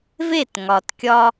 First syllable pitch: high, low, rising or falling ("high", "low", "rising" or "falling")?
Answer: falling